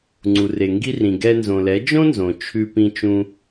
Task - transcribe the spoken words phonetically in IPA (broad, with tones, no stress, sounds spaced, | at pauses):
ŋ͡ǀ u˨ r e˨ ŋ ɡ i˧ r ĩ˨ ɡ ɛ˧ n z õ˨ l ɛ˨˦ d͡ʒ õ˦ n z õ˨ t͡ʃʰ ʉ˧ p ĩ˧ t͡ʃ ũ˧